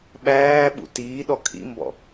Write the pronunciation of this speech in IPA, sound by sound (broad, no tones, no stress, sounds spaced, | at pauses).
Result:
ɓ æː ɓ ṵ t iː ɗ ɔ kʰ ḭ m b ɔ̰